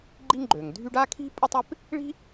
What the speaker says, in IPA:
ɡ͡ǃi˥ŋɡ͡ǃø˩ŋdʱy˥ɖ a˥kʰi̤˥ pʼɪ˥tˤɪ˥p | ɭi̤˥

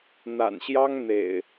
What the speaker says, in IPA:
n̪a̰˨˩nɕjɑ˦ŋn̪ḛ˨˩ɪ̯

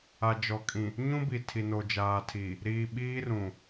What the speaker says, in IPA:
a˨d͡ʒɔ˨kʼĩ˨ | ɲũ˦bi˨ tʰi˨no˨d͡ʒaː˨tʰi˨ | ɾiː˨ ɓiː˦rũ˨

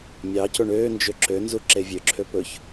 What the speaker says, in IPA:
mʲɑcoɳ øːnd͡ʒø ǁønzu ǁevʲøǁʰø pɵç

